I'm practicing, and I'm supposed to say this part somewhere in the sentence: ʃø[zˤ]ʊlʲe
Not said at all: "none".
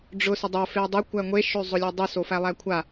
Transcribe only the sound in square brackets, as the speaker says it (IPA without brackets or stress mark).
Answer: zˤ